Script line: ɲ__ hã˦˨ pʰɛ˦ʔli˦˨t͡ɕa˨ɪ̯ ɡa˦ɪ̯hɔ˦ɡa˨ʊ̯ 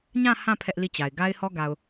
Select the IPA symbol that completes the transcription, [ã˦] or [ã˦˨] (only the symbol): ã˦˨